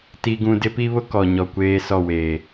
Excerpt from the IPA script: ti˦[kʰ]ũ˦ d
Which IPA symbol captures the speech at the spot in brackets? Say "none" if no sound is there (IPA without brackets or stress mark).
ɡ